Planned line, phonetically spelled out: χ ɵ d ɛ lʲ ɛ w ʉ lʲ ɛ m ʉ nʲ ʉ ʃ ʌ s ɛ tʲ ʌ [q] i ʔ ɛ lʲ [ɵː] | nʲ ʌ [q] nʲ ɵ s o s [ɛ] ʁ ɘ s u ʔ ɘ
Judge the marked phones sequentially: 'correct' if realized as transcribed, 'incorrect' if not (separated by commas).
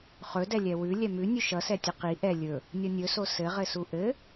correct, incorrect, incorrect, incorrect